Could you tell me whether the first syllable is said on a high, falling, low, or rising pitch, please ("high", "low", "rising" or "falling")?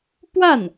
falling